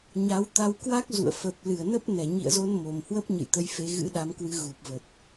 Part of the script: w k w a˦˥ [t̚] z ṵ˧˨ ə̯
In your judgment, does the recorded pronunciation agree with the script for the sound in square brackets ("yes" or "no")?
no